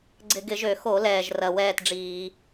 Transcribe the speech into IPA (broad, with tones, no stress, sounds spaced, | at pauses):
ɡ͡ǀ ɪ˧˩˧ ɡ ɪ˧˩˧ ʒ ø˧˩˧ x o˧˩˧ l ɛː˩ ʒ r ɐ˩ w ɛː˥˨ t ɖ͡ʐ iː˧˩˧